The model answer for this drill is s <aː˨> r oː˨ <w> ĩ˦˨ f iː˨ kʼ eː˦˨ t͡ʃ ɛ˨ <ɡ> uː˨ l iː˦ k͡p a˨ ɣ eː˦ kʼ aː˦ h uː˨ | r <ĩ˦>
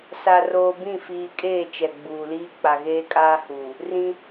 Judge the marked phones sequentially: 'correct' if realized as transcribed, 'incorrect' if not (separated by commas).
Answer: incorrect, incorrect, incorrect, correct